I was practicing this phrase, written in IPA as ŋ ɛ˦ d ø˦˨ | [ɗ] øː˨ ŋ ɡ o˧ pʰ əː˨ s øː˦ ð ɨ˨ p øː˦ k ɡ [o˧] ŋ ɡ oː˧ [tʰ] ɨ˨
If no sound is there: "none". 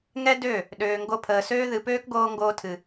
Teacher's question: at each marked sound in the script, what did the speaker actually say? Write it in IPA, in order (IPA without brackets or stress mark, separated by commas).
ɗ, oː˧, tʰ